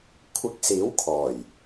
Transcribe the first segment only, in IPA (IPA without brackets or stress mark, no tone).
kʷʰ